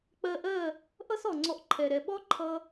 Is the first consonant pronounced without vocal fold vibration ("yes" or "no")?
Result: yes